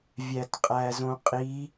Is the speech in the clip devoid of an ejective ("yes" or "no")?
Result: no